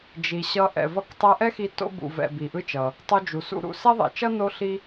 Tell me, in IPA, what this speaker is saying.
d͡ʒi˩ ɕʌ˧ ʔɛ̰˩ vʌ˧ktˤɛ˧ ʔɛ˥xi˧ to̰˧bṵ˩vɛ̰˩ bi˩ʔɯ˧t͡ʃʌ˩ | tˤo˧d͡ʒu˩ sṵ˧ɾṵ˧ sɛ˥ðˤɛ̰˩t͡ʃʌ˥ no˥ɬi˥

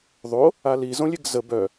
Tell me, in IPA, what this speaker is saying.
ðˤo | ali zõlʲeɡzə bœ

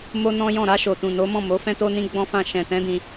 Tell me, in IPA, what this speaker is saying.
mo˦nɔ̃˦jɔ̃˦˨ ɾa˧ ʃo˨tũ˨ no˨˦mɔ̃˦˨mo˨˦ fɛ̃˦to˦nĩ˦ ɡ͡bɔ̃˦fã˦˨ ʃɛ̃˨tɛ̃˨˦ dĩ˧

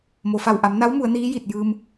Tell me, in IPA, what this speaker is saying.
mo˩fa˧˩wʔa˩˧m na˧˥wmu˩˧ə̯ niː˧˥ji˧˩t̚jɯː˧m

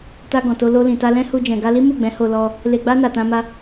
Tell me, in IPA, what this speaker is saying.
ta˧ ɡɔ̃˨to˧ lo˧lĩ˨ta˧lɛ̃˦ hu˧d͡ʒɛ̃˨ ɡa˧li˦ mu˦˨ɡ͡bɛ̃˨˦ ho˧lɔ˧ | le˧ɡ͡ba˦ na˧tã˦ma˦

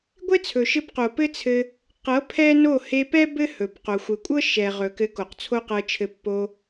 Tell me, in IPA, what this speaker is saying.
ɡʷe˦t͡sʰɵ˨ʃɘ˧b qo˨pɘ˦t͡sʰɘ˧ | qɤ˨˦ pʰɛ˦no˦˨ he˧pɛ˦ bɘ˦hɵ˨b qo˨xʷɘ˨kʷʼɤ˦ ʃɛ˨ʁɵ˨kɘ˨˦ ko˨qt͡sʰo˦qɤ˧t͡ʃʰɘ˧ pːo˧

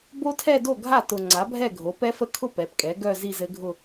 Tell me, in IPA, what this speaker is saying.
bo˦˥tʰɛ˥˧do˥˩ɡʱa˥˩ tʊ˨ ŋ͡ǀa˩˥bʱɛ˥˩ɡʱo˩˥ pɛ˦˥fə˦˥kʰʊ˥˧ pɛ˩˥pkʼɛ˩˥ ɡœ˥˧ zi˥˧zɘ˦˥ɡʱʊ˥˧

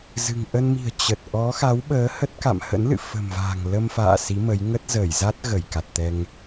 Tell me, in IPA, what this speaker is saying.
zɨ̤˨˩ŋ ʔə˧nmi̤˨˩ə̯ t͡ɕə˨˩t̚ ʔɔ˨˦xa˨˦wɓəː˨˦ hə˦˥t̚ka̰˧˨m hə̰˧˥nlɨ̰˧˨ fə̤˨˩mva̤ː˨˩ŋ lə˧mfa̰ː˧˨ si˨˦mə˨˦j ŋə˦˥t̚zəː˧˩jza˦˥t̚ ɣə˧˩jka˨˩t̚t̪ɛ˧ŋ

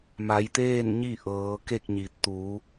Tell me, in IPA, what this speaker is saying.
ma˩˧jt̪eː˥˨nɲi˥˨ ʔɤː˩˧ke˥˨k̚ɲi˩ t̪u˩˧

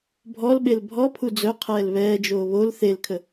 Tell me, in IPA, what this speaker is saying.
bʱɔlɓel bʱɔpʰu d͡zœqʰɛːl βɛːd͡ʒoː βol θelkʰə

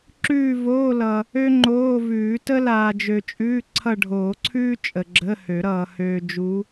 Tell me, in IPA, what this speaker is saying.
ǁʉː˦˨ voː˧˥˧lʌ˨ | ø˥ŋ͡ǃoː˧˥˧vʉː˨˩˦ tə˥laː˨d͡ʒø˨t͡ʃʼʉː˧˥˧ ǀʰʌ˦˨ɖʱoː˨˩˦ǀʰʉː˥ t͡ʃʼə˨ɡ͡ǁə˧˥˧hø˨˩˦ɾʌː˨ høː˨ d͡ʒu˧˥

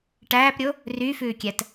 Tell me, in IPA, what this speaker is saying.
ʈæːpɾʲo | ryfʉːkʲæt

